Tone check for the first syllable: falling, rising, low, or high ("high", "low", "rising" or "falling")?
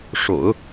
low